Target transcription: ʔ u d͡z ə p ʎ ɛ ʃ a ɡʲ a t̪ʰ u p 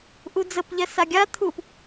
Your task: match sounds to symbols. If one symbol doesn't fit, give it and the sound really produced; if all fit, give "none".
ʃ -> s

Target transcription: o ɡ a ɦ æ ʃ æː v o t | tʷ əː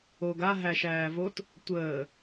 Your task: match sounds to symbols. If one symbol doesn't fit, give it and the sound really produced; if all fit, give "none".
none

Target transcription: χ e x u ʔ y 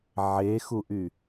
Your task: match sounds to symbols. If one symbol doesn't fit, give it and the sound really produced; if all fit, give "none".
χ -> ʕ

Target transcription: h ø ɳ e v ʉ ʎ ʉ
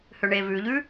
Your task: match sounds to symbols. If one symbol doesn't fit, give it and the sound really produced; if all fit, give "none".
none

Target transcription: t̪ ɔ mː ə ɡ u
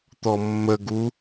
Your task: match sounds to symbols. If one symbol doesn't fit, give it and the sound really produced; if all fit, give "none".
none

